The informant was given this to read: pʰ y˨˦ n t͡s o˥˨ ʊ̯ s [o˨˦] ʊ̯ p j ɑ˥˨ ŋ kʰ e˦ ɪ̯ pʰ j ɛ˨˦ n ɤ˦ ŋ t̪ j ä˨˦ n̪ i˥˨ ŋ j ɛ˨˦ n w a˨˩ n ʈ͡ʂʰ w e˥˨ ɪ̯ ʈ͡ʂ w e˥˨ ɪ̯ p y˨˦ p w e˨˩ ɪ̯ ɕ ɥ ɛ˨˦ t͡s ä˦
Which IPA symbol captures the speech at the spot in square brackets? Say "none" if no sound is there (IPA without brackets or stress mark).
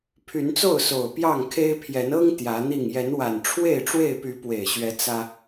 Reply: o˨˩